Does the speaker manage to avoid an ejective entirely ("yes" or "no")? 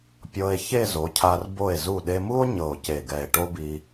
yes